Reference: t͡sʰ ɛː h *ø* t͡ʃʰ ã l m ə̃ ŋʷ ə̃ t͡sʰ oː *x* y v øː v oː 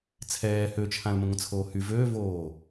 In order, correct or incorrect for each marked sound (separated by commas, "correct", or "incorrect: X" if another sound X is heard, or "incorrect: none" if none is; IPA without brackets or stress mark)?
correct, incorrect: h